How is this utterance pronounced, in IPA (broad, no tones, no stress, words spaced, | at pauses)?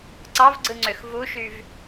ǀɑvɡ͡ǀɯŋ͡ǀøx vuʃyv